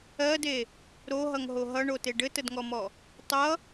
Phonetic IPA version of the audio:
ɜde | ɾoɦʌŋɦo ɦʌɳote ɖɘtədŋɔmɔ | tˤʌ

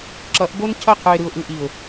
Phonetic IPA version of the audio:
ǁʌ˨˦ʔbo˦ncʰʌ˦˨ qʰɯ˨ɪ̯ɾɯ˨ʊ̯ʔɯ˨ʔi˨ʊ̯

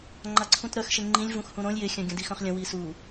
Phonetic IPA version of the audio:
ŋ͡ǃaǀʰũtɾœxʃe ŋ͡ǃĩlʲvũxhũ ɾõlʲ jɪxʲœ̃ ɡʲə̃dixœ̃χlʲə̃ wisu

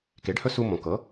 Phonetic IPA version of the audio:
ke˩˥ɖhɵ˥ su˧mõ˩kɤ˩˥

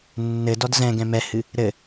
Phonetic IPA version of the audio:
nːɘdɔd zɛ̃ɡɛ̃ mɛhɨ | ɾɘ

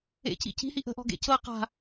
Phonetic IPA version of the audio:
ḛcḭ ci̤hi ʔə̤ʔɔ̤ɡḛ cɤ qa̤

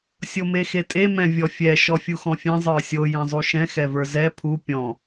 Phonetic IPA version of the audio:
sʲomexetʼe mɛ̃vʲɔfʲɛ ʃɔfʲuxɔ̃fʲẽ zˤə˞sʲo jɛ̃zˤuʃɛ̃ xɛvə˞zɛ pʰu pʲɔ̃

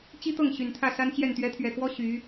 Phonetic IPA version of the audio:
t͡ɕi˥t̪ɤ˥˩ŋ ɕy˨˩nt̪ʰä˥˩sa˥nt͡ɕjɛ˥˩n t̪ɥɛ˧˥t̪ʰɥɛ˨˩kwɔ˥ ɕy˧˥

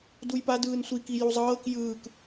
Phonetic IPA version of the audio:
dujpadɯːn sʷiki juzˤɤːk jɯːk

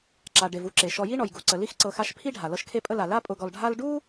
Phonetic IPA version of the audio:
ǁa˩ɖe˩v u˦ǁe˩ ʃɔ˨ji˦ɳɔ˩j ɡu˩ǀə˩li˦x ǀɤ˨xa˦ʃ pʰi˥ɖʱa˩ lɤ˦ʃkʰe˦pʼə˦la˩ la˦pʼʊ˨ɡɔ˨l ɖʱa˥l ɖu˥

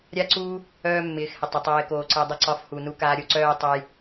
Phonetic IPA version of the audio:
ɾʲa˦ ǀu˦ | œː˦mːɪː˨˦xhɪ˨tˤə˨ tˤɪː˧koː˧ǀɪː˧dˤə˦ ǀɒ˧fhu˨ nu˧kaː˧ɾʲo˧ǀœː˦j tˤə˦j

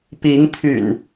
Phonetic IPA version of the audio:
pi˨˦ŋt̪ʰy̰˨˩n

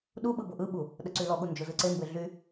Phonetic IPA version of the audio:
ɗuɓɯ bʊʔɯɓu | ɗəǀylɔɠu nd͡ʒʊzɯǀembe ɮy

